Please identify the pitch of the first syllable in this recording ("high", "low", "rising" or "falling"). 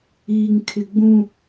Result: low